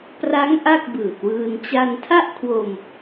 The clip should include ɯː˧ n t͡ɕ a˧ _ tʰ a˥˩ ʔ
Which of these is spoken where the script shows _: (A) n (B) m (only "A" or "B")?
A